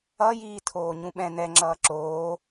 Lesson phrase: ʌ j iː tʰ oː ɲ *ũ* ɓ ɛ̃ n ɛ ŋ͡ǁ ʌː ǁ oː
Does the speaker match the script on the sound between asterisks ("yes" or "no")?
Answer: yes